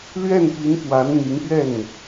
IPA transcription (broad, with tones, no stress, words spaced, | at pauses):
lɥɛ˥˩npi˧˥npwa˧˥nn̪i˧˥ŋ pɥɛ˥˩n